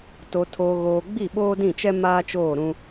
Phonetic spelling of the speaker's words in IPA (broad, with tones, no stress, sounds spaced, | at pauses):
t o˨ tʰ oː˨ ɣ oː˨ ɡ͡b i˦˨ ɓ oː˦ d ĩ˦˨ t͡ʃ ɛ˦ m aː˦ t͡ʃ oː˦˨ ɾ ũ˦